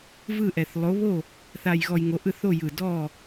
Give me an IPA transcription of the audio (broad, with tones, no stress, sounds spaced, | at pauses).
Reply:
v ɯ˥˨ ʔ ɛ˧˩ θ lˠ o˨˥ β o˥˨ | θ a˧ j ɣ ɔ˧ j ŋ o˨˥ ʔ ɯ˥˨ θ o˥˨ j ɯ˧˩ d ɔ˥˨